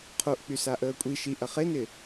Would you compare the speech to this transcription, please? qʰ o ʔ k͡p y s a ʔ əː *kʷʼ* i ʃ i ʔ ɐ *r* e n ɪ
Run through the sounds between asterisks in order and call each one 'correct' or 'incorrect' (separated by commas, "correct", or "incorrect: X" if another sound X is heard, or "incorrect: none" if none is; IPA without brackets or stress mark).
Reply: correct, incorrect: χ